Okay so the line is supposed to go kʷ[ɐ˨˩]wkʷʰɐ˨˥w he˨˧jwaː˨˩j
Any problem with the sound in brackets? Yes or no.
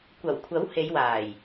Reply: no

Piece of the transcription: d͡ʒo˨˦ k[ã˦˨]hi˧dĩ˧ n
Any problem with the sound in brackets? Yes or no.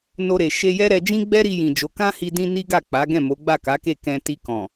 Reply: yes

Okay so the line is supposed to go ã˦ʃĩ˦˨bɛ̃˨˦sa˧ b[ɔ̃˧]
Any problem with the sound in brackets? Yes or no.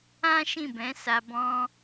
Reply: no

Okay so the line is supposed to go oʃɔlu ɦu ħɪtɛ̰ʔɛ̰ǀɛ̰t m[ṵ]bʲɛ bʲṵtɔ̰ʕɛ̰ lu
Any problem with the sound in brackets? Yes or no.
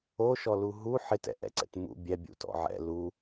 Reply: no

